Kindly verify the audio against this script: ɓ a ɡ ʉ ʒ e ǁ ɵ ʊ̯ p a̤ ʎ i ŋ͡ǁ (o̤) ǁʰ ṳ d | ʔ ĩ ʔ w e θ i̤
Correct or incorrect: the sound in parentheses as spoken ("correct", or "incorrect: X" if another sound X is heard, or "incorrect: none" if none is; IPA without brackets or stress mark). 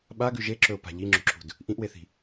correct